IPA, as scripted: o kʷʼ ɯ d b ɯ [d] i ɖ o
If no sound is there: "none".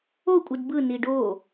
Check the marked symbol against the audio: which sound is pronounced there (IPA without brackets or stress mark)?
n